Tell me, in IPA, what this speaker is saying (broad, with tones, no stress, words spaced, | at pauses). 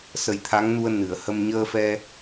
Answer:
sə˨˩jt̪ʰa˧˥ŋnu˧ə̯ nɨ˨˩˨ə̯hə˧m ɲəː˧ fɛ˧